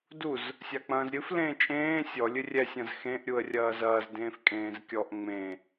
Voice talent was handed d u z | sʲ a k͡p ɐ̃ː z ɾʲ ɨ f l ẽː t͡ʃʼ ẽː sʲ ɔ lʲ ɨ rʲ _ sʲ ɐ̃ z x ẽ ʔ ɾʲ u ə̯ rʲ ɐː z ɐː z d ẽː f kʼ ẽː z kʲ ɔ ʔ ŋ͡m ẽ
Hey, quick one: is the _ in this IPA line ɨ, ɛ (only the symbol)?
ɛ